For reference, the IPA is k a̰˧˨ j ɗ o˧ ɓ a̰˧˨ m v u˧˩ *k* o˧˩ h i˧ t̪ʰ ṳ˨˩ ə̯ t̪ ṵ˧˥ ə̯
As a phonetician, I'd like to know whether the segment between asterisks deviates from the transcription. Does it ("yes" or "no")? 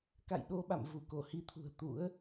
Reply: no